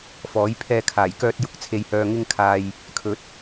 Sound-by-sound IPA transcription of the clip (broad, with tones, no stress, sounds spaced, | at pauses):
f ɔː˨˥ j pʰ ɛː˧ kʰ aː˨˩ j k œː˧ t̚ j ʊ˧ k̚ t͡sʰ e˨ j h œː˨ ŋ ɪ˧ ŋ kʰ aː˨ j | kʰ ɵ˨˥ t̚